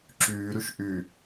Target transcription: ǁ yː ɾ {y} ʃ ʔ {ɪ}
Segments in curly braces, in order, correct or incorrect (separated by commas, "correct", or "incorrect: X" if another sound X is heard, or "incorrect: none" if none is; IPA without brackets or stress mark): correct, incorrect: y